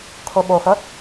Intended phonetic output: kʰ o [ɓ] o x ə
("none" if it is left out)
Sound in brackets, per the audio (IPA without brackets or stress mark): ɓ